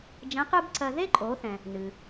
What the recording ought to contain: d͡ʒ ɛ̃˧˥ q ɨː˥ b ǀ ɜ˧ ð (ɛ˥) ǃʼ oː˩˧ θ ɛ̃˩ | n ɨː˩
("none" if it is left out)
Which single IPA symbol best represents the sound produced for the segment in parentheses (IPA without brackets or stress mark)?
e˥